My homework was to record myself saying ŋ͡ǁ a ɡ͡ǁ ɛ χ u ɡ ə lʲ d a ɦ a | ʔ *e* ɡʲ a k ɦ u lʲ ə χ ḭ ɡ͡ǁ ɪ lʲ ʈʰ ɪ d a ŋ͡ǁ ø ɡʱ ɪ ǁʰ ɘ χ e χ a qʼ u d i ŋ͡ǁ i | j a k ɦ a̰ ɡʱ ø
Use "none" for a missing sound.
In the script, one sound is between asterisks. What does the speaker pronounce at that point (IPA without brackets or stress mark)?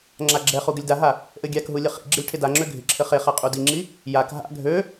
ɘ